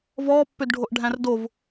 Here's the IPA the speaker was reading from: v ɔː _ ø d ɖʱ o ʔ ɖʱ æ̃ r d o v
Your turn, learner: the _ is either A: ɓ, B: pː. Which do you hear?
B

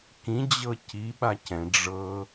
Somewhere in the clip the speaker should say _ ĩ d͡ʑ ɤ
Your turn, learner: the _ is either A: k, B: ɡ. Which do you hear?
A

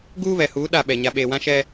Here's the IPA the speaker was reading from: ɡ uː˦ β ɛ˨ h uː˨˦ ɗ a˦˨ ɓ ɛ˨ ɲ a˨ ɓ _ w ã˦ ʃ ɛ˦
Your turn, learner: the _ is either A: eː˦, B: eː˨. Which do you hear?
B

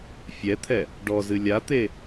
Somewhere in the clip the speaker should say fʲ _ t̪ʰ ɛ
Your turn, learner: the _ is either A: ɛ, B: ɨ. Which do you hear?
A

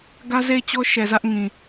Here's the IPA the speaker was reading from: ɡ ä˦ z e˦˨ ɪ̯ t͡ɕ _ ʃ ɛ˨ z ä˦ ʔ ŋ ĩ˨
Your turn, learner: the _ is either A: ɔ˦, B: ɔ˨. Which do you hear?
A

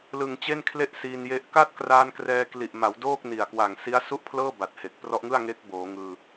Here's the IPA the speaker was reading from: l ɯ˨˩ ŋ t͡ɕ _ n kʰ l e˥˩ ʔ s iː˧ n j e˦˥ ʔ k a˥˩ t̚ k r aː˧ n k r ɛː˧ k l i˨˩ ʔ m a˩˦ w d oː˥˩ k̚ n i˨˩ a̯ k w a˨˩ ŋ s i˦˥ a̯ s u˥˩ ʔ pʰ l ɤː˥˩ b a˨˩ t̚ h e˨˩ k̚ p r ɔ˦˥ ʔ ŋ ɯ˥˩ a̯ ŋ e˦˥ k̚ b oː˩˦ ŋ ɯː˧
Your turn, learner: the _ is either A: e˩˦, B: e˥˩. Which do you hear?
B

